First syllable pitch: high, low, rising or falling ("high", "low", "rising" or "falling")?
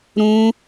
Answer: high